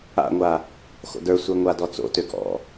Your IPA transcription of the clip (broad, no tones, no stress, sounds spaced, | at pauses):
a̰ ŋʷ a | x o̰ d ə˞ sʷ e ŋʷ a d ɔ t͡s o̰ t ø ɡ ɔ̰